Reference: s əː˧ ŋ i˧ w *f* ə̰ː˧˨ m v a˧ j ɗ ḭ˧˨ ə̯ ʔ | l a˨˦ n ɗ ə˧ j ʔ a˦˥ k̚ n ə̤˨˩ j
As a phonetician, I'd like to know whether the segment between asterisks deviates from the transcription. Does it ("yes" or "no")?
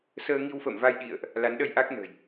no